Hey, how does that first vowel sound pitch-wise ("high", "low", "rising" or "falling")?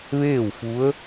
falling